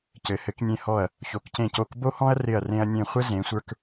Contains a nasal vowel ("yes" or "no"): yes